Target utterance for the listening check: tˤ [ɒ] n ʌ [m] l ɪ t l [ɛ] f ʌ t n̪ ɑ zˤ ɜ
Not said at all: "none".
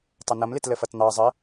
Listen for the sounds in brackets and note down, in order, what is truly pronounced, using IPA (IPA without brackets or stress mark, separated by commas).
ʌ, m, ə